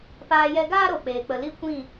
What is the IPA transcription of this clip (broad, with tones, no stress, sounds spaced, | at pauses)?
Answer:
p aː˧ j ɛ˧ ɡ aː˦ ɾ o˨ k͡p eː˨ k͡p ə˨ l i˦˨ kʷ ĩ˦˨